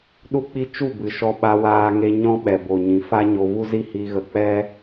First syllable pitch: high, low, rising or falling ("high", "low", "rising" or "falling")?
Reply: high